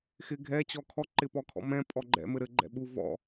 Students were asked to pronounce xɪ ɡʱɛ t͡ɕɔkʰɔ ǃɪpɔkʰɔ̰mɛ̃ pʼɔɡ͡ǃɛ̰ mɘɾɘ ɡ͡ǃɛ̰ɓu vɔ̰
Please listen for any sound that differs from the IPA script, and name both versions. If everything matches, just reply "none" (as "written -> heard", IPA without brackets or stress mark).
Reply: none